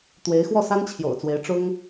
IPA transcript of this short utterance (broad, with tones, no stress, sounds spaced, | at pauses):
t̪ w e˧˥ ɪ̯ x w ɔ˥˩ s a˥ n t͡ɕʰ j o̰˨˩ ʊ̯ t͡s w e˧˥ ɪ̯ ʈ͡ʂ ʊ˥ ŋ